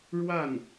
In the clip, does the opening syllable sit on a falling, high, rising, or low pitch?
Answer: falling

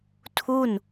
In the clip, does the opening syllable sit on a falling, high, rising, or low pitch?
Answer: falling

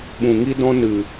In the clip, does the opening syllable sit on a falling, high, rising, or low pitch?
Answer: low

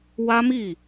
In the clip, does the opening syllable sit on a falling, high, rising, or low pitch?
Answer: high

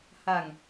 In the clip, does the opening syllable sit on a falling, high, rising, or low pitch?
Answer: low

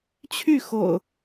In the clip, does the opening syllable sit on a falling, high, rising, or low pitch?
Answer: falling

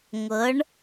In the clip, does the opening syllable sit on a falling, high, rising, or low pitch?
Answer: rising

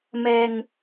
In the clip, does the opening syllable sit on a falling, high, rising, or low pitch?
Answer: low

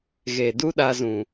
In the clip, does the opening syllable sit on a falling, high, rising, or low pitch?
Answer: low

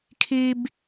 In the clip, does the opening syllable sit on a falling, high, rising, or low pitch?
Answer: low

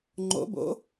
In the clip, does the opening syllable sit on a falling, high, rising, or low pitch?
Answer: rising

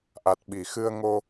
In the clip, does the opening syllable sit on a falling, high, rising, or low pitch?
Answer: low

